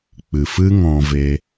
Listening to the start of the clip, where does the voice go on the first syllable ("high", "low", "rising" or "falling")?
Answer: low